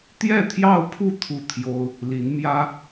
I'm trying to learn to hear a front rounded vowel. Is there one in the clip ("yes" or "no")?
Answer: no